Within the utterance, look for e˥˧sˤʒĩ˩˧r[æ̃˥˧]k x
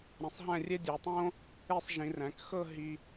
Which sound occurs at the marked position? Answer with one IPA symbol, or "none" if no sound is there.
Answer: æ̃˩˧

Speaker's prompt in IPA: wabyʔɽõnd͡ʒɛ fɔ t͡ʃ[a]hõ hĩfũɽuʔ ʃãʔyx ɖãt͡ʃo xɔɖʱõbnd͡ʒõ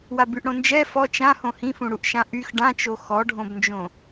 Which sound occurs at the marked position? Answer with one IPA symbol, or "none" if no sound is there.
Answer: ã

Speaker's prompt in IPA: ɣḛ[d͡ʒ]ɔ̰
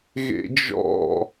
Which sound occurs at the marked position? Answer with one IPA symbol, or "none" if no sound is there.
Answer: d͡ʒ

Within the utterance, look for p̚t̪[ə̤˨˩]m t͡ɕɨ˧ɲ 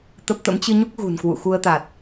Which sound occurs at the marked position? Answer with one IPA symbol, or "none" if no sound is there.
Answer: ə̰˧˥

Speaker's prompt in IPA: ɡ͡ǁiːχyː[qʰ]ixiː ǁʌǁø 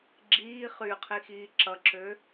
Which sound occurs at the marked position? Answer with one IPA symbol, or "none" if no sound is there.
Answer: qʰ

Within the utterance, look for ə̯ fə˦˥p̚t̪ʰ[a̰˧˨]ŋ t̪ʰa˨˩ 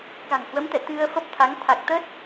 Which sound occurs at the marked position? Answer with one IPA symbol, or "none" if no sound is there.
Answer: a˨˦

